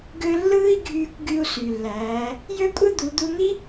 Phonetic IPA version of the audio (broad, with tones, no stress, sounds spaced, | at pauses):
ɡ ø˧ lː ɯː˧ i̯ ɡʱ yː˧ kʷ ɡ y˧ u̯ s y˩ lː æː˩˧ | j ø˥ kʷʼ ɯ˥ d̪ u˩˧ d̪ u˧ n̪ i˥